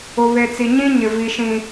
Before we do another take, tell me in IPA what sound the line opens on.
ʊ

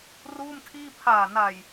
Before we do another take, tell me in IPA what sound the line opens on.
r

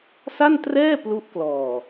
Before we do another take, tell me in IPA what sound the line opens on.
s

